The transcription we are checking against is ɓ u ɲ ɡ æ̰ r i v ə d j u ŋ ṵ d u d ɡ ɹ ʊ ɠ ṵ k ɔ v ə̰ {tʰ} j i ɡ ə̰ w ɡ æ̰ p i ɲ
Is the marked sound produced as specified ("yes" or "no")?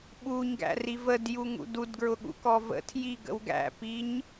yes